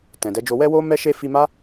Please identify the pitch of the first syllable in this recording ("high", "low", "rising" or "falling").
low